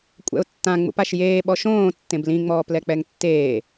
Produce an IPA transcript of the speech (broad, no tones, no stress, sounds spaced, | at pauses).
kʷʼ ɛ̰ ʊ̯ tː ã ŋ͡m ṵ p a ʃ j eː ɓ ɔ ʃ õː tː ẽ b l ĩ ŋ͡m ɔː p l ɛ k͡p ɛ ŋ tː eː